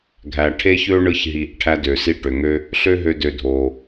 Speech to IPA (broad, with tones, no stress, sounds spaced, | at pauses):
ɡʱ æ˨ ʈʰ e˦ ç ø˦ ɳ ɯ˧ ç ɦ i˨ ʔ ʈʰ æ˧ d ø˨ s i˧ ʈ ø˨ ŋ ø˦ | ɬ ø˦ ɦ ø˧ d ø˧ dʱ o˨